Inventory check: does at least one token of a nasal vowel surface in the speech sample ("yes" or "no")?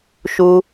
no